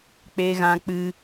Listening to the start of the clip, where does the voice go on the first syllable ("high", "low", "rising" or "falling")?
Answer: high